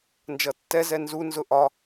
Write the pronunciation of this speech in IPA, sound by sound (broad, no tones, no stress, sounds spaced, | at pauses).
n d͡ʒ ʌ tː ɛ z ɛ n z u n z ʊ ʔ ɒ